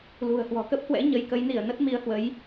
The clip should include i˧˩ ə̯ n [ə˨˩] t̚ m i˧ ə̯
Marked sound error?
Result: yes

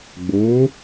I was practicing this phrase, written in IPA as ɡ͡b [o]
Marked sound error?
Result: no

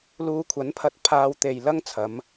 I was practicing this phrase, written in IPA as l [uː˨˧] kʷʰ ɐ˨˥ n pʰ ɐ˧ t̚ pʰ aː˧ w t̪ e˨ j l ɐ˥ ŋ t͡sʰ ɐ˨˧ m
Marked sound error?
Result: yes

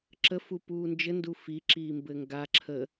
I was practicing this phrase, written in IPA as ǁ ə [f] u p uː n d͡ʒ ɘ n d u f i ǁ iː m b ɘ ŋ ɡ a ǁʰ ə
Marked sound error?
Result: no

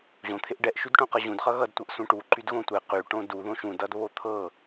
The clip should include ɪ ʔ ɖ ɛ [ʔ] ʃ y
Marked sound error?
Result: no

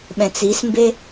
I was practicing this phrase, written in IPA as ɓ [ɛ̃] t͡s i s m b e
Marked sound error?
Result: no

